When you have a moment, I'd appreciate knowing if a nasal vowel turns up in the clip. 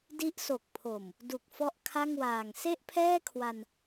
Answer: no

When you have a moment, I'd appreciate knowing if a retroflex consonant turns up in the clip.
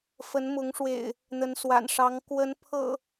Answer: yes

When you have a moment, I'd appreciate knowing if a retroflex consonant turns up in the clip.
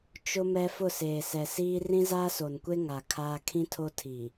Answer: no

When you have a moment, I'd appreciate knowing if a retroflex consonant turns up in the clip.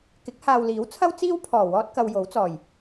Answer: no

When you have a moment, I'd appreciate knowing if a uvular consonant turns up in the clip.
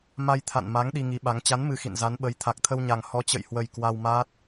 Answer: no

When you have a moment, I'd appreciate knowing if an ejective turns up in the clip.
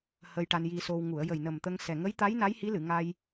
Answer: no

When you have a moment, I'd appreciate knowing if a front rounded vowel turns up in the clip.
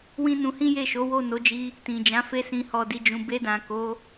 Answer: no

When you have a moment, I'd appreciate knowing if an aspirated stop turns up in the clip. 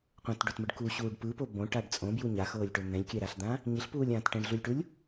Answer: no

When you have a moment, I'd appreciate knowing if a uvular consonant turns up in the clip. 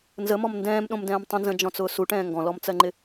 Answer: no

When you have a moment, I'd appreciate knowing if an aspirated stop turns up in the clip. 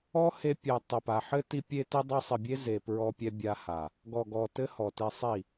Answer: no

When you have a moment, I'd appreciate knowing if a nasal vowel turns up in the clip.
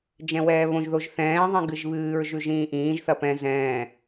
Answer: yes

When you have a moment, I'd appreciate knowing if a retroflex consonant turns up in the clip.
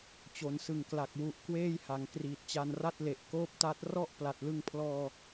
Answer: no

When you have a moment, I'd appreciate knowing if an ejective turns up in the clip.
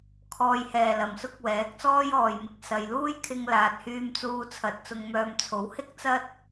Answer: no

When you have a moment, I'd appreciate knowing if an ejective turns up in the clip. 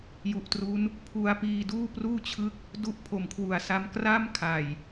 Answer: no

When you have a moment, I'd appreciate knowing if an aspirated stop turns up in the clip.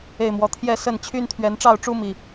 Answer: yes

